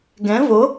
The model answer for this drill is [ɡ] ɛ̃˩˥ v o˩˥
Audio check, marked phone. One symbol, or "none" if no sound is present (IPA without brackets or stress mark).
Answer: ɡ